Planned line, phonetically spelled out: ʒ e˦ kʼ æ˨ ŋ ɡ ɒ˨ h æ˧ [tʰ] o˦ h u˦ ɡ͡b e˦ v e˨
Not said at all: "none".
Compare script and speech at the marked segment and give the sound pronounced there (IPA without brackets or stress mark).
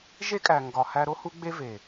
ɾ